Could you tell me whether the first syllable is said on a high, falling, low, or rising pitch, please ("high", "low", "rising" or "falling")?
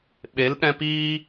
rising